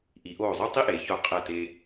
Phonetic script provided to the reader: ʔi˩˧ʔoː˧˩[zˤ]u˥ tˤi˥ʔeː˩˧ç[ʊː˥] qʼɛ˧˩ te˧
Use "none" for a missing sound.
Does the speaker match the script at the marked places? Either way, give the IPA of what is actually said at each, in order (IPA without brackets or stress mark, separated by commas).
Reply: zˤ, ʊː˧˩